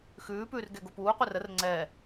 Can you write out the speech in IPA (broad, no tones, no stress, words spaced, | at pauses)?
xʉːpʉːr ɡɛɡopuːqʷer ər ŋ͡ǀɛ